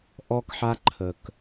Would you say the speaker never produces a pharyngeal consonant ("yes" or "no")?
no